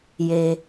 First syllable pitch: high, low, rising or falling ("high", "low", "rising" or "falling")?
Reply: low